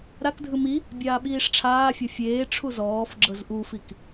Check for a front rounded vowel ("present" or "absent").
absent